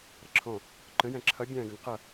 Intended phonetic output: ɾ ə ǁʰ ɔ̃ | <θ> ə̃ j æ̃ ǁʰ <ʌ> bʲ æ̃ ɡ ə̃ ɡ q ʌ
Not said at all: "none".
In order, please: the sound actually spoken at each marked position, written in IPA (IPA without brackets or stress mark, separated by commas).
ǃ, ʌ